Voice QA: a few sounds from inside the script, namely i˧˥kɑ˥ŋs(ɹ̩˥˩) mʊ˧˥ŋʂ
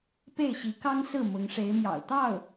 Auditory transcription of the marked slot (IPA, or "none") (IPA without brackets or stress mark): ɹ̩˥˩